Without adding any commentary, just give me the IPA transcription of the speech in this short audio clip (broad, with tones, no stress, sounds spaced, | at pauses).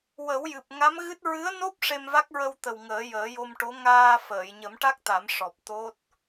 w ə˨˩˦ w j ɨ˨˩ p̚ ŋ a˧˥ m ɣ ɨ˦˥ t̚ ɹ ɨ˧˥ ə̯ n o˦˥ p̚ ʂ e˧ m v a˦˥ k̚ ɹ ə˧ w t̪ ə˨˩ w ŋ əː˨˩˦ j əː˨˩˦ j o˧ m ʈ o˧˥ ŋ aː˧ f əː˨˩˨ j ɲ ə˨˩˦ m ʈ a˦˥ k̚ t̪ a˨˩˦ m ʂ ɔ˨˩ p̚ t̪ o˦˥ t̚